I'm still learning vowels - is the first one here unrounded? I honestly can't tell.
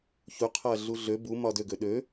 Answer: no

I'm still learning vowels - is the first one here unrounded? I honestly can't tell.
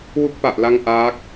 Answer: no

